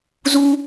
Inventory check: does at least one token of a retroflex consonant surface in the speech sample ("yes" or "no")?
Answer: no